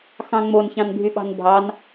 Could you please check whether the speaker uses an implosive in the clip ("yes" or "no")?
yes